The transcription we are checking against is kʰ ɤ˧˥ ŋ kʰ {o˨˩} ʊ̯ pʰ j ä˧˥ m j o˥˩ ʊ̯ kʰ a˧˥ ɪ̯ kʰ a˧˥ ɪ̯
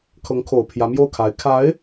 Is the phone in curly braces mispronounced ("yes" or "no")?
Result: no